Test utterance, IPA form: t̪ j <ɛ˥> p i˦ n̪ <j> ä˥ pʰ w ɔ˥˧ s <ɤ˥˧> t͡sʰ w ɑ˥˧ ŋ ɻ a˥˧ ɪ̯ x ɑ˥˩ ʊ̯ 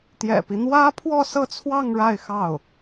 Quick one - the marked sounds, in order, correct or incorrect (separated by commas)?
incorrect, incorrect, correct